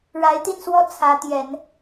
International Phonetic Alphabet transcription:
ɻa˧˥ɪ̯t̪i˥˧nswɔ˥˩ t͡sʰä˧˥ t̪jɛ˨˩˦n

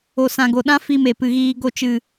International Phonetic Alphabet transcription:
o˨ sã˨ɡo˨ɗã˦ fi˧me˨ pɨ˨ɣiː˧ ɡo˧t͡ʃɨ˨

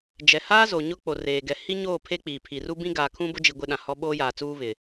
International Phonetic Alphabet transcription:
d͡ʒɛ˨haː˦ zo˨ɲʊ˦ k͡po˨reː˨ ɡɛ˨hi˦ɲoː˦˨ pʰe˦k͡piː˨ pʰi˨ru˦bĩ˦ ɡaː˨kʰũ˦bʊ˦d͡ʒi˨ ɡʷɪ˦ɗã˨hɔ˦ ɓoː˦jaː˨t͡suː˦ βɪ˨

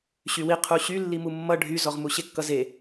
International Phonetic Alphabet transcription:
ɕywi qʰuɕy lːimumːʌ ɖʱyzɔʁmu ɕekːʌze

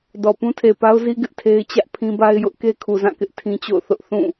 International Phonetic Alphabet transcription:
dɔ˨ pũ˦tʰe˨pa˦ʊ̯zi˦ ɡɪ˦ʔtʰe˦ɪ̯ t͡ɕä˦ʔpʰĩ˦ba˦ɪ̯jʊ˦ʔ ke˦kʰu˨zã˦˨kɪ˦ʔ tʰĩ˦t͡ɕo̰˦˨ʊ̯θʊ˦ʔ θũ˦˨

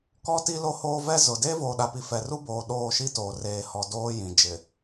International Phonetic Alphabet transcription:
kɔ˦ ti˦lo˦hoː˦vɛ˦ zʊ˨ deː˦voː˨ɗa˨pi˨ fɛ˨ru˦boː˨ ɗoː˦˨ʃi˦toː˨ reː˨hɔ˨ doː˦jĩ˨ d͡ʒɪ˨

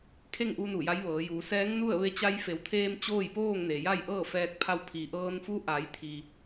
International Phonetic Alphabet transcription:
kʰe˥˨ŋʔu˧ nu˧˩ja˧˥jʋɤː˩˧juː˩˧ sɛː˧˥ŋnu˥˨ə̯ ʋe˧t͡ɕa˧jfe˩˧wt̪ʰeː˧m t͡ɕoː˥˨jpoː˥˨ŋne˩ ja˥˨jʔɤː˥˨fɛː˧k̚pʰa˧w pʰi˩ʔɤː˧nfu˧˥ ʔa˩˧jt̪ʰi˩

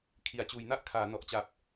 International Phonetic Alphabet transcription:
kʰi˩˦a̯ t͡ɕuː˩˦jna˥˩ʔkʰaː˩˦ nɔ˨˩ʔt͡ɕa˨˩p̚

